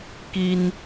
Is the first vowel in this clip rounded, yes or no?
no